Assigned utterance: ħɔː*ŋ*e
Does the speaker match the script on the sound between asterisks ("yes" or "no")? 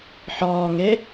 yes